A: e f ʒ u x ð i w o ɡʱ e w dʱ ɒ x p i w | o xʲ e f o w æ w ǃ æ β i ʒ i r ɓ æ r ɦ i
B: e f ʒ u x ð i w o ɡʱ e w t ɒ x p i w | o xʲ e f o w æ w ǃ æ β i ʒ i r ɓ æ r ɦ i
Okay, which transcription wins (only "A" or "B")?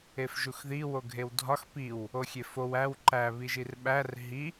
A